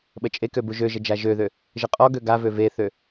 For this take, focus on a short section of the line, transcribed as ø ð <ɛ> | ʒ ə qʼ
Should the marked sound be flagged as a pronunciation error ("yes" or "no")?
yes